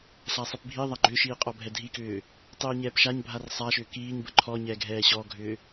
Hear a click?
yes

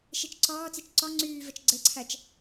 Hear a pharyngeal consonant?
no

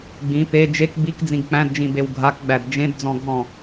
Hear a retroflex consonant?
no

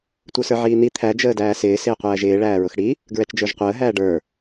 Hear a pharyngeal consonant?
yes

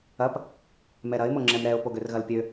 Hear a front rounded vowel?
yes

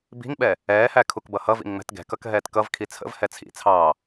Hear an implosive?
yes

